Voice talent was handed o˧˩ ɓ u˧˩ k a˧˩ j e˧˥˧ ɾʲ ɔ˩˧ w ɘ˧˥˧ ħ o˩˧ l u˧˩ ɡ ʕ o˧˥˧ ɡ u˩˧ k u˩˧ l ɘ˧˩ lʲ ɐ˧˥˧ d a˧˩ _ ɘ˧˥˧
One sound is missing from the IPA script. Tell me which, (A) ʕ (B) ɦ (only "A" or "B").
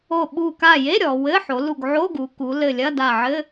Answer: A